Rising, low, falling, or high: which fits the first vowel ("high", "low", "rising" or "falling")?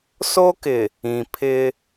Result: high